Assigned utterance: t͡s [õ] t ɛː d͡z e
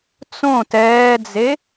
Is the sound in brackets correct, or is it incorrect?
correct